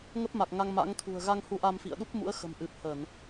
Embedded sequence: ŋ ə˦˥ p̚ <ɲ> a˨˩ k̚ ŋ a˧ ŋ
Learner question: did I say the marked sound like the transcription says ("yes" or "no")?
no